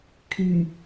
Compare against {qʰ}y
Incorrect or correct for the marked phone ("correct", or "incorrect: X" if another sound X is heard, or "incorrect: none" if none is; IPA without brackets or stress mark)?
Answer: incorrect: kʰ